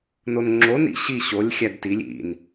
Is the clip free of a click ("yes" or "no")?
no